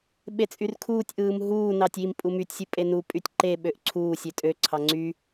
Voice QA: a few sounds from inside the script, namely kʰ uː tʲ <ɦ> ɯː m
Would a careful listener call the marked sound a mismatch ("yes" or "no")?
yes